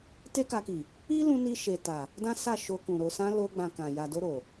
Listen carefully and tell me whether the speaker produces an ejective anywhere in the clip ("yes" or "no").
no